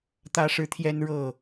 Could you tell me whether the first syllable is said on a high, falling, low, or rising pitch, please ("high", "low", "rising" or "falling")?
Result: high